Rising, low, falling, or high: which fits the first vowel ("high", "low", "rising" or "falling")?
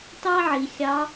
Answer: high